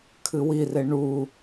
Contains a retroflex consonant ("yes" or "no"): yes